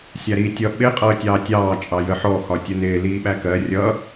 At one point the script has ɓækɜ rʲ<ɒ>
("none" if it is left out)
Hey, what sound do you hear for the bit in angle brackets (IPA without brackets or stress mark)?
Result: ʌ